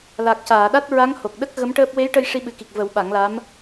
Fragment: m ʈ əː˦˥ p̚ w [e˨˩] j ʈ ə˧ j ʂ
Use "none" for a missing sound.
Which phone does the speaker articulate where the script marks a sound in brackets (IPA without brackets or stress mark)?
e˧˥